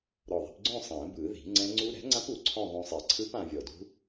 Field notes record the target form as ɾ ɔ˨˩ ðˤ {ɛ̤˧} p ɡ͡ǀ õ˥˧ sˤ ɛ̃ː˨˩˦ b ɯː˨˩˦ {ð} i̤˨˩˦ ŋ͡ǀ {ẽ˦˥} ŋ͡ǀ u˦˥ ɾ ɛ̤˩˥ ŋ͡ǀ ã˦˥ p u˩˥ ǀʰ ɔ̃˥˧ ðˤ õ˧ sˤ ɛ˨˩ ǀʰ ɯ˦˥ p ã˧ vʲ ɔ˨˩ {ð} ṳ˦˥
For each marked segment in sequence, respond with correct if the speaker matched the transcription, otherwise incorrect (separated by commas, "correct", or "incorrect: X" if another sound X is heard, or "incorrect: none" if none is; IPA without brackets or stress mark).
correct, correct, incorrect: ɛ̃˦˥, incorrect: d